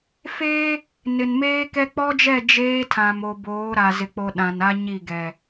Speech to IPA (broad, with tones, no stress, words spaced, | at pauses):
feː˦ | nɪ˨nmeː˦kɛ˦ k͡pɔ˦d͡ʒɛ˦˨ d͡ʒeː˦ tʰã˨mo˨ boː˨˦ɾa˨zɪ˨ k͡po˨ ɗã˨na˦ɲi˦˨ɡɛ˨